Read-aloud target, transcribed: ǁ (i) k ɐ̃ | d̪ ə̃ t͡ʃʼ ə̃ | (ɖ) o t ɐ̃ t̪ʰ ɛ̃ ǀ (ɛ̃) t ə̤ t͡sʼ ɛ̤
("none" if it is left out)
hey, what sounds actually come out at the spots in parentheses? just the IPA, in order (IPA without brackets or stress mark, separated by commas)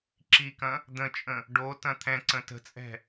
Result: i, ɖ, ə̃